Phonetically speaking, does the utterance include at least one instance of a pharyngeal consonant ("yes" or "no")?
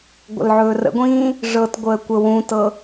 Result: yes